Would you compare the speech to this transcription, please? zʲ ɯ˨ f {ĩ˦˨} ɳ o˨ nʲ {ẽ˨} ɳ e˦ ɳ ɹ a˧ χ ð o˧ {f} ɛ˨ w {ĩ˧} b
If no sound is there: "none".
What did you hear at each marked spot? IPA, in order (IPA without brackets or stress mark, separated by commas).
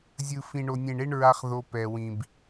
ĩ˨, ẽ˨, p, ĩ˨